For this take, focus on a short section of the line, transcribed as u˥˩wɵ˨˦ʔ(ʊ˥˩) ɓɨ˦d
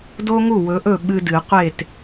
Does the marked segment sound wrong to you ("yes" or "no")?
yes